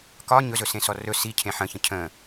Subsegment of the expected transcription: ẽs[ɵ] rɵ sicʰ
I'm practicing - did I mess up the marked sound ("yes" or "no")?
yes